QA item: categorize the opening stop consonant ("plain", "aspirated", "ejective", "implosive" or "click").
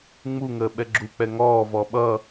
implosive